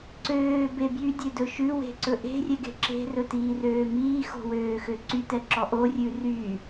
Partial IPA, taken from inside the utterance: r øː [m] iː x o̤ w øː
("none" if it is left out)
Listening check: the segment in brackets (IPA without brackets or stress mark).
m